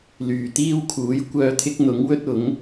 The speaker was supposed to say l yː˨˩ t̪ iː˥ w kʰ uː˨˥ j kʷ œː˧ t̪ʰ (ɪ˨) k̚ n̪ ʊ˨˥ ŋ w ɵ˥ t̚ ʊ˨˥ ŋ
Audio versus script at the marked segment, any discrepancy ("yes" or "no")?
yes